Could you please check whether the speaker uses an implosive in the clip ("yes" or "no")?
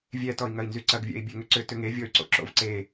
no